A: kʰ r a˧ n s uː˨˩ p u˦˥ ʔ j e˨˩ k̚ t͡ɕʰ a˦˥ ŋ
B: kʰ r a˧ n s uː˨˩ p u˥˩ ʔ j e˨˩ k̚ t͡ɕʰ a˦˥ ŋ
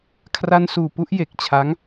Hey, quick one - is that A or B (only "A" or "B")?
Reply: B